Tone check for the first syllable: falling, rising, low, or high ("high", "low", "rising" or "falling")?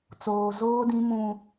low